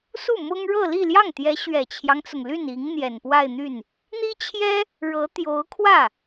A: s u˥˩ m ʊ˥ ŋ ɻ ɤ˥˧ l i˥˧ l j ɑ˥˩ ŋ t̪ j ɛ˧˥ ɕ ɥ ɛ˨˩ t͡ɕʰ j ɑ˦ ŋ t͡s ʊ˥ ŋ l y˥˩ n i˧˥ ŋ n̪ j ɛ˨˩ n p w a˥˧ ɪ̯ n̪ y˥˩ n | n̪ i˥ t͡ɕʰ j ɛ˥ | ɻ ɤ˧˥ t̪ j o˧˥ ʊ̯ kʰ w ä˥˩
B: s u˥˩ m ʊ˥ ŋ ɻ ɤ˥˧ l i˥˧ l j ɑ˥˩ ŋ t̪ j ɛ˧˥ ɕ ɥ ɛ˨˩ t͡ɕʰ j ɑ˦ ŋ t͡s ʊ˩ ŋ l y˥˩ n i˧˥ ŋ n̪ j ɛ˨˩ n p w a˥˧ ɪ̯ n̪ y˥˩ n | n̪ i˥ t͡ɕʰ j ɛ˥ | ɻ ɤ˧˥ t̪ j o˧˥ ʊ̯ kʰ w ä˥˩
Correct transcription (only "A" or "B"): B